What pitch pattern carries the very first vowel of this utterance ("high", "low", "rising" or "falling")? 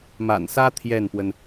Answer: low